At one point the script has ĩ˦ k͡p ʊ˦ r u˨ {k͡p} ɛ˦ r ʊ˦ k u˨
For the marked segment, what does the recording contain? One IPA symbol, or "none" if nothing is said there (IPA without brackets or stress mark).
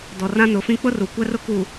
kʷ